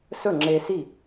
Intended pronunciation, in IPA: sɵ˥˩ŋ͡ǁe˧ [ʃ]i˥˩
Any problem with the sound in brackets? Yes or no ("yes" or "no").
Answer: yes